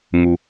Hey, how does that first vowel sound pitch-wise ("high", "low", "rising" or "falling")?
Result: low